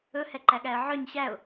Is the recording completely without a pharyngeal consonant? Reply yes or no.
no